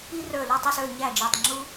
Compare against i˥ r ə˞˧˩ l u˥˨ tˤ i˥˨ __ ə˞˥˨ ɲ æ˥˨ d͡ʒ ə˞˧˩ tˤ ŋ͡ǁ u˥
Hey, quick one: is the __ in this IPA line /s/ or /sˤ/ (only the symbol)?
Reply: s